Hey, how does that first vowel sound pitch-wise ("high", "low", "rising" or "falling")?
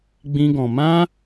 high